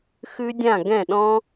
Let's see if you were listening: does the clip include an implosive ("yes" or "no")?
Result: yes